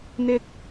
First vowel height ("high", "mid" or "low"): high